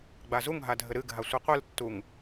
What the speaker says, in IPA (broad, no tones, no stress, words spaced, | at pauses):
ɡ͡bazuŋɦa dʱɘɾɨɡʱa sʷɨqʷɨltːuŋ